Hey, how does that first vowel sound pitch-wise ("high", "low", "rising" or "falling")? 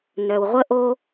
low